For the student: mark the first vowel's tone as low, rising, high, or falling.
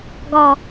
falling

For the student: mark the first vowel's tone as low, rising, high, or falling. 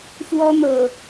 high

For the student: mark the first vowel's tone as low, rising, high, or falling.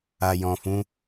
low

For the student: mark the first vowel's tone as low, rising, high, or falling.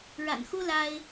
low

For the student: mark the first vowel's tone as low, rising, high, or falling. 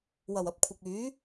low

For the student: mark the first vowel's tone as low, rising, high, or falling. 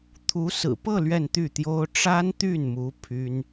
rising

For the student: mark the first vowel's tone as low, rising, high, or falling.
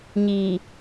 low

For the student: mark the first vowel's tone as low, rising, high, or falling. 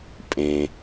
low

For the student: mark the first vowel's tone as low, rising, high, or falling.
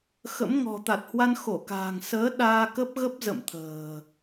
rising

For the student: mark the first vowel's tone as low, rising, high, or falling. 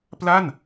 falling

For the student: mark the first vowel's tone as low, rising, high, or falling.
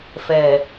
low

